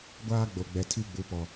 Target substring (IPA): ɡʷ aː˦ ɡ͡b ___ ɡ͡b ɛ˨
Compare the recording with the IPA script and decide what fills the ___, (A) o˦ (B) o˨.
B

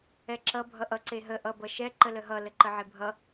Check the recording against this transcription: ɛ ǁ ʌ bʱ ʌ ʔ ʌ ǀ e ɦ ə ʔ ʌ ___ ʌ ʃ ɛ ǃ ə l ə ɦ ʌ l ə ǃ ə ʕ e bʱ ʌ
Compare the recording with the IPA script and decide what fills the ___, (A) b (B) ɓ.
A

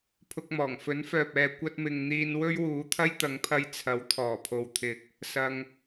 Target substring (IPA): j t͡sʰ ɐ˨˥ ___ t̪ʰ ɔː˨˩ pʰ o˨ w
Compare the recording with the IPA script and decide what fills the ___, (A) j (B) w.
B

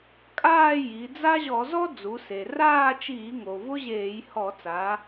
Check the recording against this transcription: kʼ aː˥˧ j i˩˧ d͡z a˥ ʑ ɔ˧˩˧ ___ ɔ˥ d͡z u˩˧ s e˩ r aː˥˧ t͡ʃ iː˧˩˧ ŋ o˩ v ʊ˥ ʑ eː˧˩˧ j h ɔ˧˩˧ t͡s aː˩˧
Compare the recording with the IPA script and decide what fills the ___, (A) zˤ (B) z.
B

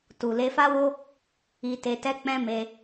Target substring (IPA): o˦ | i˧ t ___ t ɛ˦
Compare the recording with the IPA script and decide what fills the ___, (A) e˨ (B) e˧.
B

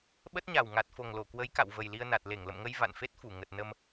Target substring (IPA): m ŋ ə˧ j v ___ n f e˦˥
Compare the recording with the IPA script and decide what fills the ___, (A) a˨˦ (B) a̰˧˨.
B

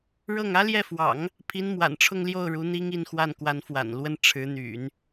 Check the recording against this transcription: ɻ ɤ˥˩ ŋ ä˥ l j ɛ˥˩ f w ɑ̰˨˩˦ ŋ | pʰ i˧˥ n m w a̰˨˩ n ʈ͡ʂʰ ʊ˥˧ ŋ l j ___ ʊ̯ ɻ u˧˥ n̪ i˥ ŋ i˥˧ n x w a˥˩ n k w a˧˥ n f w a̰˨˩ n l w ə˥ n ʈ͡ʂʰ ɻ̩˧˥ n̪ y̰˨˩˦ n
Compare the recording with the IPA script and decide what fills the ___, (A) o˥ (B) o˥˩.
B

